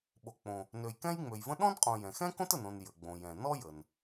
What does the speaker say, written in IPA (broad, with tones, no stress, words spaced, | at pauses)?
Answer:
ɓo˨k͡põ˨ | nø˨jkɛ̃˥jŋ͡mø˨jvə̃˥ ɗɔ̃˥nqʼõ˨jɛ̃˩xɛ̃˥ kõ˥tə˨nõ˨n jə˩ɡ͡bõ˩jɛ̃˩ nɔ˥jə˩n